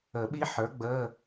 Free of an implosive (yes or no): no